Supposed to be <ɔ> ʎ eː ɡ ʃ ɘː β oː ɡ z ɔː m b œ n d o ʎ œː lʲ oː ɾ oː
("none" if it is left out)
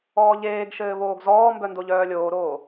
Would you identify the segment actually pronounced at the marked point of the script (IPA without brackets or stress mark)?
ɔː